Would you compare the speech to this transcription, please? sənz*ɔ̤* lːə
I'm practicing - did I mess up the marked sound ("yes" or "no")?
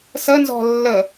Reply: no